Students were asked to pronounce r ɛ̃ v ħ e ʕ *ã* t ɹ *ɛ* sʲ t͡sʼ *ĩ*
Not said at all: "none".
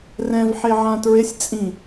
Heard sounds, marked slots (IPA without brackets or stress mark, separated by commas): ã, ɪ, ĩ